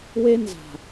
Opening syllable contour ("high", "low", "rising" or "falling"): high